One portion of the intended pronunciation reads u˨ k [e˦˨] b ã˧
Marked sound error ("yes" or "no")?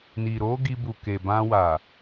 yes